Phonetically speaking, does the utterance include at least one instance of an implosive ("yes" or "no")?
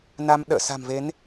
yes